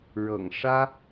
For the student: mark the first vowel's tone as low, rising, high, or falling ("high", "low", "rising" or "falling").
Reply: low